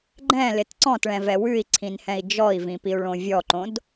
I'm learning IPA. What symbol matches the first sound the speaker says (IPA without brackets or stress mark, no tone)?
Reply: ɡ͡ǃ